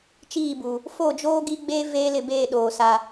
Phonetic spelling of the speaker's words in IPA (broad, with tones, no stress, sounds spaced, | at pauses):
t͡ʃ iː˦˨ b u˨ | f o˦˨ d͡ʒ oː˦ ɡ i˦ ɡ͡b eː˦ v eː˦ l ɪ˦˨ b eː˦˨ ɗ oː˨ s a˦